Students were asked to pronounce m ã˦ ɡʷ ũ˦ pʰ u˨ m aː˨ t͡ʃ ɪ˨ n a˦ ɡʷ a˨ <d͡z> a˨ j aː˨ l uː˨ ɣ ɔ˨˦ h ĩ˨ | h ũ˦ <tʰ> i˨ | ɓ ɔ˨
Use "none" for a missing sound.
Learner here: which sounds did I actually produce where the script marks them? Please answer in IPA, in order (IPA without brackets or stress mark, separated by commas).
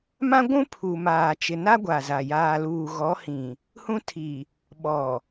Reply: z, tʰ